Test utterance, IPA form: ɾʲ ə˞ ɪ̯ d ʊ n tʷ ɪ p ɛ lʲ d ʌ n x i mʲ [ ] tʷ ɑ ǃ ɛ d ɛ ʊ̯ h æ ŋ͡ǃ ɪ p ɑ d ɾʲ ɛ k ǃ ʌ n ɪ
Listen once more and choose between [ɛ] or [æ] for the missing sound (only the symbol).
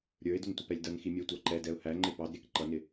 æ